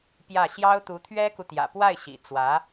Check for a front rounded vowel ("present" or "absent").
absent